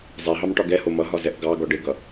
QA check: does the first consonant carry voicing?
yes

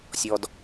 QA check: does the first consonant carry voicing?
no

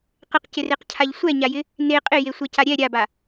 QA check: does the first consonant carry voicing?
no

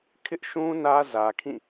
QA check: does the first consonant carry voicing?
no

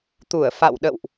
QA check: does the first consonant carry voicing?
no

